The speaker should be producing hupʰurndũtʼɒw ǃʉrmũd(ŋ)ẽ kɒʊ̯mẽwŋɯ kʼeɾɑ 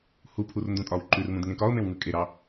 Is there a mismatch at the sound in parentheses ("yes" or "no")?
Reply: no